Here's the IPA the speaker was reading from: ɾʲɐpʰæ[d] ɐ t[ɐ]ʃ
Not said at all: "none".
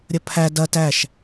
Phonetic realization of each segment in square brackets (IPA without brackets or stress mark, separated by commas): d, æ